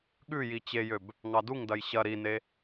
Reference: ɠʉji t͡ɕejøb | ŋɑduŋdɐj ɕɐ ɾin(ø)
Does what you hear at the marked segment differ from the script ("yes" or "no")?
yes